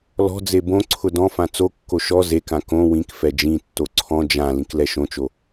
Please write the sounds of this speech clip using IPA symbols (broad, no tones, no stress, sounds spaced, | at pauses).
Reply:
l ɔ̤ d͡z e b õ ǀʰ ʊ d ɔ̃ f ã t͡s o kː o ʃ ɔ z e k ã k õ w ĩ k f ɛ d͡ʒ ĩ tː o ǀʰ ɔ̃ d͡ʒ ã l ĩ k l ɛ ʃ õ t͡ʃ o